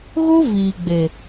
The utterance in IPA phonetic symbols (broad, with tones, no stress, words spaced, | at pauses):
ɣo˦ viː˨ɡ͡be˨